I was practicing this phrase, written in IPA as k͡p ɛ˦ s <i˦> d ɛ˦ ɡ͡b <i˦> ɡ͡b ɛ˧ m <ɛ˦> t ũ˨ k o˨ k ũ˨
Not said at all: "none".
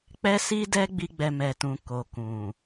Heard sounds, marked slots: i˦, i˦, ɛ˨

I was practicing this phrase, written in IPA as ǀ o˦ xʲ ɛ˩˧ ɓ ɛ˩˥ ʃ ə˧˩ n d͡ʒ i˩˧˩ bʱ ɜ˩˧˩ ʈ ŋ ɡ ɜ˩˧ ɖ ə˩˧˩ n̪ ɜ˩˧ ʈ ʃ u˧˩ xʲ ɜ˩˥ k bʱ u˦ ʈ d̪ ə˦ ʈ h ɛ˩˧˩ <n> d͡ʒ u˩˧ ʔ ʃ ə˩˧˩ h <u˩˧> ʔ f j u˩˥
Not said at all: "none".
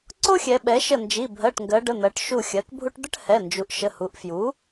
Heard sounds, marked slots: n, u˩˧

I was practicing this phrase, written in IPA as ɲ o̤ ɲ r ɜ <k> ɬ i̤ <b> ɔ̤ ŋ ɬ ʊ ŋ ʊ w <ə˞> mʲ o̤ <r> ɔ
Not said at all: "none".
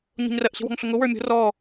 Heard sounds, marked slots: ʔ, w, ə˞, r

